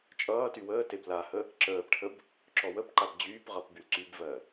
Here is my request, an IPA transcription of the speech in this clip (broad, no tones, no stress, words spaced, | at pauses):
t͡ʃʼʌːty wəːteb lahə | ǁəːpʈʰəb | ǁɔwəpǃab d͡ʑyːpʁʌp bylǀybvɜ